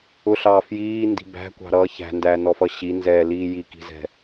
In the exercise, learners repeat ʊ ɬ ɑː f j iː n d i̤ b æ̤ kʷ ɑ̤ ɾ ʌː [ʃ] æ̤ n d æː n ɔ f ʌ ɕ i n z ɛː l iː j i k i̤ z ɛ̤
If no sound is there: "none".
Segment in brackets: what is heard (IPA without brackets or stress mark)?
ç